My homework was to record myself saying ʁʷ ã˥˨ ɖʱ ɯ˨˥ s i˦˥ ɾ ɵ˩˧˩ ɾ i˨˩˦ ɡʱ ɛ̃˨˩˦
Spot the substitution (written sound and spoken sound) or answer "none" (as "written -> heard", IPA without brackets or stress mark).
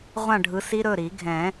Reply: none